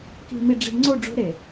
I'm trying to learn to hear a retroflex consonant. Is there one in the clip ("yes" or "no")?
yes